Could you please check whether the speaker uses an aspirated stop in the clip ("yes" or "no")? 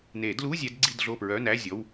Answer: no